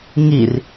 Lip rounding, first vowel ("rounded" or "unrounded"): unrounded